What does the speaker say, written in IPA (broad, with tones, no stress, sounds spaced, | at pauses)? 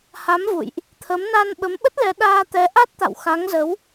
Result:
h a˨˦ m v ṵ˧˨ j ʔ | t̪ʰ ə˨˦ m n a˧ n ɓ ə˨˦ m ɓ ə˦˥ t̚ l ɛ˨˦ ɗ aː˧ t̪ ɛ˨˦ ʔ a˦˥ t̚ t̪ a̰˧˨ w x a˨˦ ŋ z ə˨˦ w